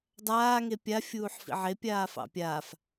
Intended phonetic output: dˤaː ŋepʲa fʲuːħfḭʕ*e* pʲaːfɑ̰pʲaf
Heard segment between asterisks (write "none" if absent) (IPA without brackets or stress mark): e